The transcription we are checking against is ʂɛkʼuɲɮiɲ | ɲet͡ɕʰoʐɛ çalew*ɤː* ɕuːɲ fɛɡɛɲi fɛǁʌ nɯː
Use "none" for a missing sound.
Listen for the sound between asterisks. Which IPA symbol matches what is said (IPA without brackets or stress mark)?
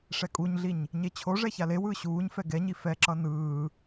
ɯː